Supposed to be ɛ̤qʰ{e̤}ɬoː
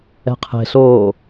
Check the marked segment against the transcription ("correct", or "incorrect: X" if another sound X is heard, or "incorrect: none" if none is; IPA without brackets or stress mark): correct